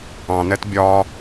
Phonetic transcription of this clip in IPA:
ɑ̃ n ɛ t bʲ ɒ

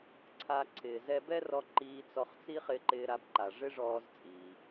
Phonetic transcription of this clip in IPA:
ǀʰ a˧ ǀʰ ɪː˩ z ɛ˧ b ɛ˥ r ɔ˧ ǃ iː˧ t͡s ɔ˧ χ t͡s i˥ χ ɪ˧ ǃ ɪː˧ ɾ a˧ b ǃ a˩ ʐ ɪ˥ ʐ ɔː˧ z t͡sʼ iː˩

